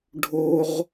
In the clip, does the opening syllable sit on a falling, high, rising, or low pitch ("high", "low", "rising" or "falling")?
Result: high